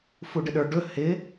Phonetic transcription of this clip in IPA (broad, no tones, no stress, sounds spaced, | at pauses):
f u ɖ ɪ ɗ ə˞ ɖ ɵ h ɪ